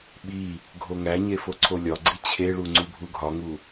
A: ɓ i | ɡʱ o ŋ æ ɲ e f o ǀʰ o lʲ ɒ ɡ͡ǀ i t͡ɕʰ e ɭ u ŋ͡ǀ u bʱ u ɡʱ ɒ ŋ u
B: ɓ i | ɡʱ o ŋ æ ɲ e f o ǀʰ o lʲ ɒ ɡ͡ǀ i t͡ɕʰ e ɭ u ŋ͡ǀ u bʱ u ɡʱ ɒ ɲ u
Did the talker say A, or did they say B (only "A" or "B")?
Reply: A